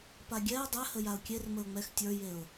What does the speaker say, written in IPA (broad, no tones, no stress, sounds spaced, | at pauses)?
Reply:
p a ɡʲ ɛ ɪ̯ dˤ ɛ h ə j a ʊ̯ kʲ e r m ə ʊ̯ ŋ͡m ɛ x tʲ ə˞ j e ʊ̯